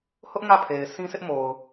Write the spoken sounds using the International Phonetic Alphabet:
h ʊ˦ ʔ ŋ ä˦˨ pʰ e˨ ɪ̯ sʰ ĩ˦ sʰ ɪ˦ ʔ m o˨ ʊ̯

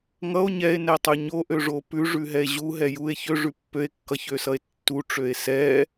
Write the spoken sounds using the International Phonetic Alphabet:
ŋ ʌ o̯ ɲ ɛ e̯ n ɛ tˤ ʉ ɲ o ʔ ø ʐ o p ʉ ʐ ʉ ɦ ɛ e̯ ʑ u ɦ ɛ j u e̯ ç ø ʐ ʉ pː ø e̯ kː ʌ ç ø s ʌ e̯ tː u ʈ͡ʂ ø e̯ s ɛ

